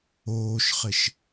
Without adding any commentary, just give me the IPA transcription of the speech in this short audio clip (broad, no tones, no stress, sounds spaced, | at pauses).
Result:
oː ʃ χ ɪ ʃ